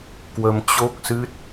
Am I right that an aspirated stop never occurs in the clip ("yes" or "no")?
yes